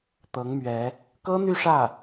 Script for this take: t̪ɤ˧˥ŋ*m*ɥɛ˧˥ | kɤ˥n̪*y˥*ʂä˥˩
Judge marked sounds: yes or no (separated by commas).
yes, no